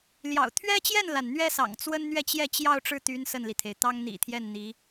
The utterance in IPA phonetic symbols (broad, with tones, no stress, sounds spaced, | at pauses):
l j ɑ̰˨˩ ʊ̯ t̪ʰ ɥ ɛ˥ t͡ɕ j ɛ˥˩ n l a˩ n n̪ ɥ ɛ˥ s ɑ̰˨˩ ŋ t͡s w ə˥ n n̪ ɥ ɛ˥˧ t͡ɕ j ɛ˥˧ t͡ɕ j ɑ˥˧ ʊ̯ ʈ͡ʂ ɻ̩˥˩ t̪ y˧˥ n s ə˥˩ n l i˩ t̪ʰ e˩ ɪ̯ t̪ ɑ˥ ŋ n̪ ḭ˨˩ t̪ʰ j ɛ˥˩ n n̪ i˧˥